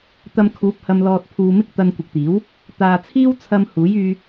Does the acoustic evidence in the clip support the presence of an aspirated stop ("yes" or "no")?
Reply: yes